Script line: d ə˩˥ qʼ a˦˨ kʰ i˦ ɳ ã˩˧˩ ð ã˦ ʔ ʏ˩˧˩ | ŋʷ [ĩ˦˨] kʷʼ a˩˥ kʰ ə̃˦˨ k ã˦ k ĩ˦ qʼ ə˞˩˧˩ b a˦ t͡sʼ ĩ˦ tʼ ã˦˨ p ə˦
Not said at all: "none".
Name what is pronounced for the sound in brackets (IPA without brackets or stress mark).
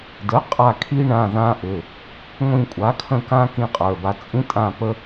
ĩ˦˨